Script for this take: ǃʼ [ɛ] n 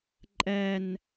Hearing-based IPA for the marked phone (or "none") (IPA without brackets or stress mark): ɛ